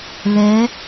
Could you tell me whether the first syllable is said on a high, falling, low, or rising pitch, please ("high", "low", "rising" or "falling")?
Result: rising